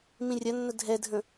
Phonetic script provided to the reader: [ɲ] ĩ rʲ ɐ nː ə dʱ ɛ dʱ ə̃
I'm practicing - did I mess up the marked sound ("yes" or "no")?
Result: yes